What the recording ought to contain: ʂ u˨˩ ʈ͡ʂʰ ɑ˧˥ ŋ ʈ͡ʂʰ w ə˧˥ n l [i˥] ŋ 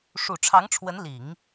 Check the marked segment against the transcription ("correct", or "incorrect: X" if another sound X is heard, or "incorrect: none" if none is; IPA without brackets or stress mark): incorrect: i˨˩˦